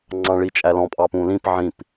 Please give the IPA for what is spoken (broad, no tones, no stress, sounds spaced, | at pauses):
ŋ͡ǀ ɑ̃ ɭ i t͡ʃʼ æ l ɔ̃ pʼ ɑ p ũ l ĩ p ʕ ĩ p